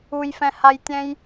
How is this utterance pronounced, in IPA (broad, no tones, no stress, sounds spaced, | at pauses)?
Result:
u j f ɛ̃ h a j tʲ ɛ̃ j